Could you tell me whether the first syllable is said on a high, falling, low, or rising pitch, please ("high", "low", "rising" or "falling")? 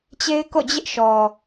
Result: high